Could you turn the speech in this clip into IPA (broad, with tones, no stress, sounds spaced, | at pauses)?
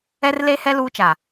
ɛ˦ r l e˦ h ɛ˦ l uː˦ t͡ʃ a˨